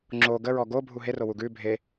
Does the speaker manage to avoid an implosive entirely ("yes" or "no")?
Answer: yes